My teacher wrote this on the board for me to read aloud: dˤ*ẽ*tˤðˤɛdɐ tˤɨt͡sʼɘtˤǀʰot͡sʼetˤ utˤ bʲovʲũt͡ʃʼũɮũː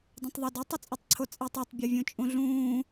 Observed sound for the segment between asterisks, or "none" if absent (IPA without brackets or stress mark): ẽ